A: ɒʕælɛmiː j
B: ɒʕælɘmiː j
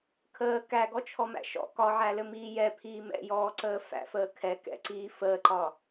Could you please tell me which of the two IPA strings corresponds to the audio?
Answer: B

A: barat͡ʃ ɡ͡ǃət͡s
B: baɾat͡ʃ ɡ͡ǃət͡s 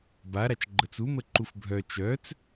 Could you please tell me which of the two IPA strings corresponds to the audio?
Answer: B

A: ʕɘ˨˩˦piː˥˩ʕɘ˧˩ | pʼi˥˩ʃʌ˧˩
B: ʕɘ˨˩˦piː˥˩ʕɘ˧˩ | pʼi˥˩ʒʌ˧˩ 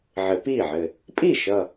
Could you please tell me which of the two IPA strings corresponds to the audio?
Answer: A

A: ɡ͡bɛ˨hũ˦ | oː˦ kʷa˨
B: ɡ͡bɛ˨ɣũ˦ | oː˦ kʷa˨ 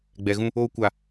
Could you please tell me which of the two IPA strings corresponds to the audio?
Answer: B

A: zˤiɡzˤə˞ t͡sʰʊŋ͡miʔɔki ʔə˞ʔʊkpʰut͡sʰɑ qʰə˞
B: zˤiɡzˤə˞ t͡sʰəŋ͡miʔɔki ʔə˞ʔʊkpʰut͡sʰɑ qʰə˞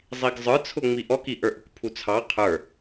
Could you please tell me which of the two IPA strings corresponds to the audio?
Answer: A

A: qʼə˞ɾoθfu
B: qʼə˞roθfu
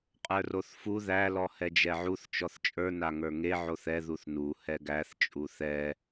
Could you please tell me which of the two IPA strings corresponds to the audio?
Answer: B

